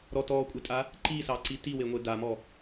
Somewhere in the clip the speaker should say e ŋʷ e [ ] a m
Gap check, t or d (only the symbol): d